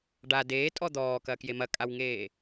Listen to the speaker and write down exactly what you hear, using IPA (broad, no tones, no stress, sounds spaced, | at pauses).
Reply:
ɖ a d eː tʼ ɔ d̪ ɔː k ɐː k j e m ɐ kʼ a w ŋ eː